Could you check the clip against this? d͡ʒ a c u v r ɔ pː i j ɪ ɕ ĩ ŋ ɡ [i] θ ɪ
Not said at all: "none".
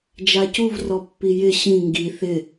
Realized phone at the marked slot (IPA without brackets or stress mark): i